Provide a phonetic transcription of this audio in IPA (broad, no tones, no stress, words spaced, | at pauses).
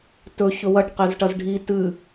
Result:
tɵ çɵwɐʈ qezʈɐzɖʱi tɨ